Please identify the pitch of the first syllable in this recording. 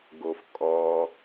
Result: low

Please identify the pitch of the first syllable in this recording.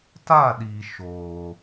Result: falling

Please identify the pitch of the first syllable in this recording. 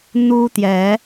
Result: high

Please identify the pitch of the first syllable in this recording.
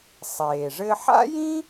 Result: low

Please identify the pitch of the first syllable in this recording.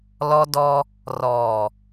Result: high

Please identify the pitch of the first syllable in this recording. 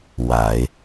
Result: low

